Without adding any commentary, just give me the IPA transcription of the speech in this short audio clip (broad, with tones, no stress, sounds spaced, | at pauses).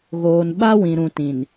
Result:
ɣ oː˨ n ɓ a˦ w ĩ˨ ɾ ũ˨ t ĩ˨ n